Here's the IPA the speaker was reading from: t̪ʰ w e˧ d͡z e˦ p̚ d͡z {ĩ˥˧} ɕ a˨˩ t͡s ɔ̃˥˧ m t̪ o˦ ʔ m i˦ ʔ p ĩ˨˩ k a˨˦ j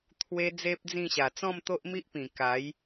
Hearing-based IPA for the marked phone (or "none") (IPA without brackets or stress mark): ĩ˥˧